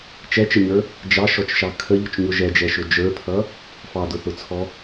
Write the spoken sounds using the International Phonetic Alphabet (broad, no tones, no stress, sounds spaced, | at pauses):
t͡ʃ ɛ t͡ʃ ə ɲ ə˞ | d͡ʒ ɑ ʃ ɔ t͡ʃ ʃ ɑ kʰ ə ʎ ʊ t͡ʃ ɲ ʊ ʒ ɛ d͡ʒ ɛ ʃ ʊ d͡ʒ ə˞ pʰ ʌ | f ɑ d ʊ θ ʊ t͡sʰ ɔ